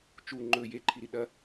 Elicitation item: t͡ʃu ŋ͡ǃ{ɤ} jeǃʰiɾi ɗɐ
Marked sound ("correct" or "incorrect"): incorrect